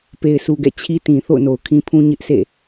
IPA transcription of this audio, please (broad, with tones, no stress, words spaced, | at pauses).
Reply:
pe˨ɪ̯sʰu˨ɡɛ̰˦˨ t͡ɕʰi˦tĩ˨ θo̰˦˨ʊ̯no˨ʊ̯kʰĩ˦pʰũ˦ ɲɪ˦ʔsḛ˦˨